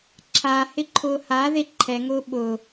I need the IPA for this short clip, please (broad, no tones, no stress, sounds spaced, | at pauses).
ǁʰ a h ɪ ǃʰ ʊː h a ð e ǃʰ ɛ ŋ ʊː ɓ ʊ